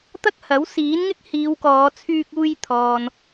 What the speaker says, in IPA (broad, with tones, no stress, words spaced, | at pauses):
t̪ɐ˥k̚hɐ˨˥w siː˨˥nŋɪ˥k̚ hiː˨˧wkɔː˨˧ t͡sʰyː˧k̚uː˧j t̪ʰɔː˨n